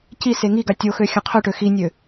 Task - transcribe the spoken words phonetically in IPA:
c i s e ŋ i ɡ a tʲ o x ø xʲ œ̃ qʰ œ ʈ ø x i nʲ ø

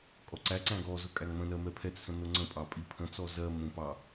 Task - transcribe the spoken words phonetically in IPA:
kʼ ɔ ǀ æ ǀ æ̃ ɡ ɔ z ʊ kʼ æ ŋ m ə̃ n ɜ m ɛ pʰ ɛ t͡s s ə̃ n ʊ ŋ͡ǀ ə̃ pʼ ɑ pʼ i pʰ ə̃ t͡s ɔ z ɜ m ũ p ɑ

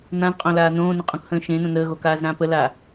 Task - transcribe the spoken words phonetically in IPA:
n ã z qʼ õ l aː n õː n ə̃ qʼ õ k h ə̃ː ʃ ẽ n õ n əː ɣ o k aː z ɾ ãː p ə l a

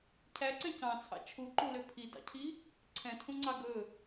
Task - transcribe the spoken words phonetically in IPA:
cʰ æ ǀ ɛ̃ c ɑ̃ t͡sʰ ɑ̰ t͡ʃʰ u ǃ u l ø pʰ i d ɑ̰ cʰ i | ǀʰ ɛ̃ tʰ ũ ŋ͡ǀ ɑ ɡ ɵ

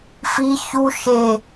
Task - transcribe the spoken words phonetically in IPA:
f i ç u ʃ e

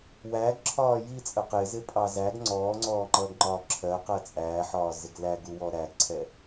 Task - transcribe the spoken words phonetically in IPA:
w æː ɡ ǁʰ ɒː j i t͡sʼ ə q ɪː z ɪ pʼ ɑ z æ ɡ ŋ͡ǀ ɔː ŋ͡ǀ ɔː ŋ͡ǃ ʌː ɡ ŋ͡ǃ ɒː ǁʰ ɜ q ɜ t͡sʼ æː ħ ɒː z ɪ ɡ l æ ɡ u w ɔ ɾ æ ɡ ǀʰ ɛ

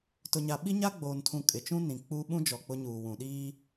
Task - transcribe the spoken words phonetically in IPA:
t ʊ˨ ɲ a˨ ɓ i˦ ɲ a˦ ɡ͡b oː˨ n tʰ ũ˨ kʼ ɪ˨ t͡ʃ ũ˦ n ĩ˨ k͡p uː˦ ɓ ũ˦ d͡ʒ ɔ˨ k͡p ʊ˦ ɲ uː˨ w ũ˨ ɗ iː˦

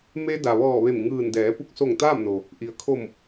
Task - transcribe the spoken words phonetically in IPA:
m e˧ d a˩ ʋ ɔː˧˩ ʋ e˧˩ m ŋ ɯː˧˩ n d ɛː˩˧ p u˧˩ k̚ s o˧˩ ŋ t̪ aː˥˨ m n o˩ | ʔ i˩ ə̯ kʰ o˧˩ m

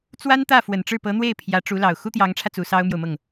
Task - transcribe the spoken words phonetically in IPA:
t͡s w a˥ n t̪ ä˥˩ f w ə˨˩ n ʈ͡ʂ ɻ̩˥˩ p ɤ˧˥ n̪ w e˥˩ ɪ̯ pʰ j ä˧˥ ʈ͡ʂ u˧˥ l ɑ˨˩ ʊ̯ x u˥ t̪ j ɑ˧˥ ŋ ʈ͡ʂʰ ä˧ t͡s u˧˥ s ɑ˥ ʊ̯ m j o˨ ʊ̯ m ɤ˥˩ ŋ

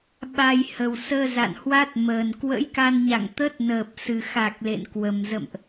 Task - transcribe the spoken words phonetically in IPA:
ɓ a˧ j h ə˨˩ w s əː˧ z a̰˧˨ n h w a˦˥ t̚ m əː˨˩ n k w ə̰˧˥ j k a˧ n ɲ a̰˧˨ ŋ t̪ ə˦˥ t̚ n əː˨˩ p̚ s ɨ˨˩ x a˨˩ k̚ l ḛ˧˨ n k w ə˨˩ m z ə̰˧˨ m ʔ

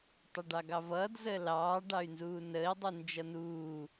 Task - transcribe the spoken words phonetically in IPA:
tˤ ʌ ɖ ɑ ɡ ɑ v ʌː d z əː l ɑː ɖ ɑ y̯ n z uː n əː i̯ dˤ u n d͡ʒ ʌ n uː

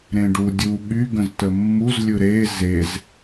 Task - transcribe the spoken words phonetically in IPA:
ɾ ẽ ɖ u dʲ u ɠ y ɡ ə̃ z t ə mː u z lʲ ɯ ɾ e z e z

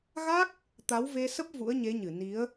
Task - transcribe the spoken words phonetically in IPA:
ɣ a˦˥ k̚ | t̪ a˨˦ w v e˧ s ə˦˥ p̚ v ṵ˧˥ ə̯ ɲ e˨˦ ɲ ɨ˧˩ n i˨˦ ə̯

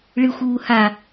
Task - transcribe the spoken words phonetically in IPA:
ɭ ɨ xʷ uː h a

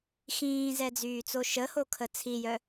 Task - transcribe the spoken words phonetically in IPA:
x ĩː z ɛ d͡z yː t͡s o ʃ ə h o kʰ ə t͡sʰ i j œ

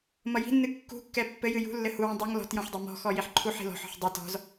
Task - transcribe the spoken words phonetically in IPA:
m ʌ j i̤ nː ɨ kː ṳ kː ɛ pː ɘ j ɨ j ṳ lː ɘ h u w ɛ̃ dˤ ʌ ŋ l ɔ̤ t j ɔ̃ ħ dˤ ɛ m ɔ̤ x ɔ j i ħ ǃʰ u ħ i̤ l ɔ̤ ħ ɔ̤ ħ dˤ ʌ t ɔ̤ z

